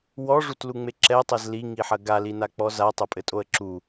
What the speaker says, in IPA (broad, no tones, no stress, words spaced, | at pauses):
wɔʐutluŋ͡me ǁɛtˤɛz liŋiħɐ ɡalinak͡pɔ zatˤɐpʼɘtʼoə̯ ǁu